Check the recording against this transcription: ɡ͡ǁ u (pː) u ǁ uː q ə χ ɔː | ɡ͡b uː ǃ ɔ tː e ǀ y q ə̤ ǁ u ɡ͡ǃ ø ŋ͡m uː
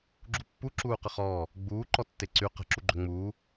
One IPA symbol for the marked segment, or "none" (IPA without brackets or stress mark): pː